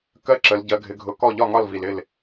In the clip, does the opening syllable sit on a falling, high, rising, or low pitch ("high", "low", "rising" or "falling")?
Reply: high